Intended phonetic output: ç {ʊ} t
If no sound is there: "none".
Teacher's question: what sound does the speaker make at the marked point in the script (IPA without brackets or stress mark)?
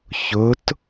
ʊ